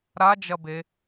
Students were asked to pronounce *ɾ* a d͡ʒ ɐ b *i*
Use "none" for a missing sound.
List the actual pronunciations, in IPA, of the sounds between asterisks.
ɾ, e

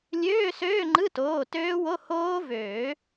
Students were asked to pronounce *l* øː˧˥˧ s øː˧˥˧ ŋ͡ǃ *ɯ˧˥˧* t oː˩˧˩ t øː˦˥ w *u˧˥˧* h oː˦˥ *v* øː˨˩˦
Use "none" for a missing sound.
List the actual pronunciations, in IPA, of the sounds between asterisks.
lʲ, ɯ˧˥˧, o˧˥˧, v

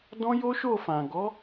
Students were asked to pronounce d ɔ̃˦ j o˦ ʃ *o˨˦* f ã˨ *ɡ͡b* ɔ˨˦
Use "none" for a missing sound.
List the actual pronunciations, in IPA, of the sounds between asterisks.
o˦˨, ɡ

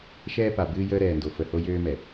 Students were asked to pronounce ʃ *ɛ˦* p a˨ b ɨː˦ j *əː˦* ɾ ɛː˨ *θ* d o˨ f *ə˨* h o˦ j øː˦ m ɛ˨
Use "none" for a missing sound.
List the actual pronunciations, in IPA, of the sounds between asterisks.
ɛː˦, əː˦, n, ə˨

